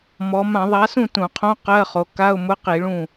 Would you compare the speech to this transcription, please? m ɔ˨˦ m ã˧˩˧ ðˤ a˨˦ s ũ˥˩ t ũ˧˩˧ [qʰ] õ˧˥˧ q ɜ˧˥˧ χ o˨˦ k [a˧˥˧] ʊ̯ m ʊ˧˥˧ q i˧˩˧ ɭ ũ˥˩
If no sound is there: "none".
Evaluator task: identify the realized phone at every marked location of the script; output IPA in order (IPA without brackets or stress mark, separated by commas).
qʰ, a˧˥˧